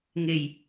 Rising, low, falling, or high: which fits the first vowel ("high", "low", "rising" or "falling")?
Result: low